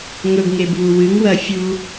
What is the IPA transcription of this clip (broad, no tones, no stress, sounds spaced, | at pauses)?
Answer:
ŋ ɵ ɡ ŋ e b β u w ɨ ŋ w ɐ fʲ u